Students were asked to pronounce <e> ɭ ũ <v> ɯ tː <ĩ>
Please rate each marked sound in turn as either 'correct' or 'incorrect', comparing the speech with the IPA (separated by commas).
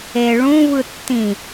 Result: correct, correct, correct